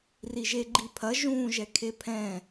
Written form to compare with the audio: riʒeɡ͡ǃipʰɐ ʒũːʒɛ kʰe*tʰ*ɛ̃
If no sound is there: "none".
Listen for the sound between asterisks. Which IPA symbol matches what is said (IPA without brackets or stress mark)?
pʰ